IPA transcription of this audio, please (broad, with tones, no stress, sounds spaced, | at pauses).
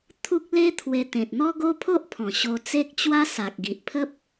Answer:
t̪ʰ u˦ k̚ l e˦ t̪ʰ w e˧ t̪ ẽ˨ t̚ n̪ ɔ˦ ɡ o˦ pʰ o˦ ʔ pʰ ɔ̃˨˩ ɕ o˧ t͡s e˦ k̚ t͡ɕ w a˦ s a˨ k̚ ɡ i˨ ʔ pʰ ə˦ p̚